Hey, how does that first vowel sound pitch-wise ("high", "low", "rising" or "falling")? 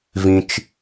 low